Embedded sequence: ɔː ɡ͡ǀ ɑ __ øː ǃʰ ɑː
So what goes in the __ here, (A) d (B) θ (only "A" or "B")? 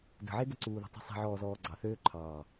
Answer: B